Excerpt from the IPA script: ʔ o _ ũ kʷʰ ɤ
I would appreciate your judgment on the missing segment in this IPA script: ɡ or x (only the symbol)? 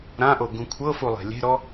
ɡ